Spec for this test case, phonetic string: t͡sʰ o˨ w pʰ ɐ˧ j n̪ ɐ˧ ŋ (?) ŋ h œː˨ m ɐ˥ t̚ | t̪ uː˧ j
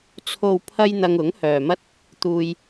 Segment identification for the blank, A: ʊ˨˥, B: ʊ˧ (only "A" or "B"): A